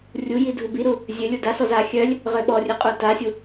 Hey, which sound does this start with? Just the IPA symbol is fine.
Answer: rʲ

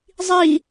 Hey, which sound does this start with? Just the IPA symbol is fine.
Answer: zˤ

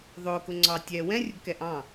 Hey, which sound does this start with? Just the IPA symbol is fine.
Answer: ðˤ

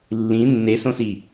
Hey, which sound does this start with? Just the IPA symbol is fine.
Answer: lː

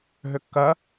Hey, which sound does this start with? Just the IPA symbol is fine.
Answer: ɦ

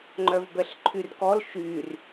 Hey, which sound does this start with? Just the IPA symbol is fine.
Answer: ŋ͡ǃ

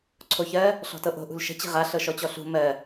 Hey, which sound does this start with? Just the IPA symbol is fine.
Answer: ǀʰ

